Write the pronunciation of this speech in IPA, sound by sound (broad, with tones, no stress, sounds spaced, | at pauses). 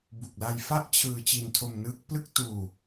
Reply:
b u˨˩ k̚ l a˧ j f a˥˩ ʔ t͡ɕʰ ɯː˧ t͡ɕ i˧ n tʰ o˧ m n ɯː˦˥ k̚ p l ɯ˥˩ k̚ t uː˧